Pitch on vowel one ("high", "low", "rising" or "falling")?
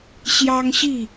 high